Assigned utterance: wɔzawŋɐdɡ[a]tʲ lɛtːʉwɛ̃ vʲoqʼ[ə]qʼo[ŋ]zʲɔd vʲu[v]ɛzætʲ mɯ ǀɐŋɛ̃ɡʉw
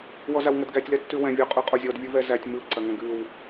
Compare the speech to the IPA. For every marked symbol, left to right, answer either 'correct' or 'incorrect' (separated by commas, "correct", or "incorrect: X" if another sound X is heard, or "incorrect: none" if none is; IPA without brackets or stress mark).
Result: incorrect: æ, incorrect: ʉ, incorrect: none, correct